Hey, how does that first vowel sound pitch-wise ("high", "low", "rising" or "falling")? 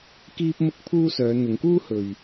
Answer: high